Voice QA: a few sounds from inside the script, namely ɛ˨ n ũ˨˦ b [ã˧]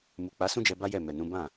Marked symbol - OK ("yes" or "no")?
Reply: no